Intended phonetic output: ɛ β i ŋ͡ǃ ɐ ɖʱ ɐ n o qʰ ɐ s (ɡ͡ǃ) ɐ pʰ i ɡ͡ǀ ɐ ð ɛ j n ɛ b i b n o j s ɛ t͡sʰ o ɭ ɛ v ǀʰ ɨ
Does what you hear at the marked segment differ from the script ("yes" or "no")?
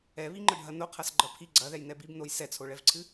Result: no